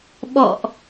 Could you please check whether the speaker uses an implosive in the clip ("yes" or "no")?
yes